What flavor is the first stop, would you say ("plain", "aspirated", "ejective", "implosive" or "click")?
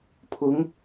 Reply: aspirated